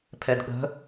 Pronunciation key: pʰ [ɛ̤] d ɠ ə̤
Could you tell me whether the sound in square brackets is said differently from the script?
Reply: yes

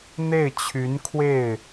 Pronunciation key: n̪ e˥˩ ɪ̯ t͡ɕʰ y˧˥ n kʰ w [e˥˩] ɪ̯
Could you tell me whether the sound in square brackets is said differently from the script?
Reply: no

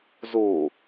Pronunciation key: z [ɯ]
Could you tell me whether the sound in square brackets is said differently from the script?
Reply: yes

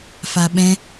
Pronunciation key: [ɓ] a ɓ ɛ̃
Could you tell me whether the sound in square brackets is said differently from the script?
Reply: yes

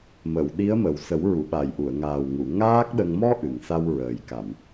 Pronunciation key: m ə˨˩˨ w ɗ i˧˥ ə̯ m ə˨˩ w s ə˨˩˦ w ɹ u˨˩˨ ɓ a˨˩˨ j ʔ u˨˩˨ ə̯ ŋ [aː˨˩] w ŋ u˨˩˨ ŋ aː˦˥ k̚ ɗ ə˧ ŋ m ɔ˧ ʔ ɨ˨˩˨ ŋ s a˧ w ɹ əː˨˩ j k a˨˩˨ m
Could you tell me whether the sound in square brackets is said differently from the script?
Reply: no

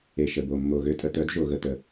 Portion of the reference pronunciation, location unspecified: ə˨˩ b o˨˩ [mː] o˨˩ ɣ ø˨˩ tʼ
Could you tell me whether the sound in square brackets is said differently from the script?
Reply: no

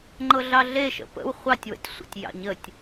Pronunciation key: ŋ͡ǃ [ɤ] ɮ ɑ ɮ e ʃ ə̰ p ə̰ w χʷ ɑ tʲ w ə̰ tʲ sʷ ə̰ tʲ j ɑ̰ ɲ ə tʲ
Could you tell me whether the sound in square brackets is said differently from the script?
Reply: no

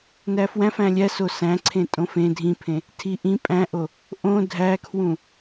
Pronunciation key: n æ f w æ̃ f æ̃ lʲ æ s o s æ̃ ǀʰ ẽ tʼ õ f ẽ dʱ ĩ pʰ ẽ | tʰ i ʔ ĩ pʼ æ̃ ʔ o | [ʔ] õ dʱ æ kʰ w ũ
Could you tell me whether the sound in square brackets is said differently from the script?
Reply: no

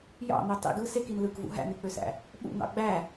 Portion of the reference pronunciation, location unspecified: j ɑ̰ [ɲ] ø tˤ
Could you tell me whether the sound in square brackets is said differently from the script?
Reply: yes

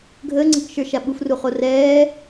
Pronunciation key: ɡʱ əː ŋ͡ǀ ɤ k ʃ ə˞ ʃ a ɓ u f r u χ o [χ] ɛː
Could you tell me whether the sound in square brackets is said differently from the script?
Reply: yes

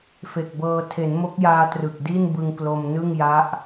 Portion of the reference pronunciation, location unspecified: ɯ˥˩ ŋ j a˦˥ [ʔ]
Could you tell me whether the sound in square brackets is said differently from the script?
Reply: no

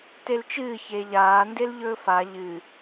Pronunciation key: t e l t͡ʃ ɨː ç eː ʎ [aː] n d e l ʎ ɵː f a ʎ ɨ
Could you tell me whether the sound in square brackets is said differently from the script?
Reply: no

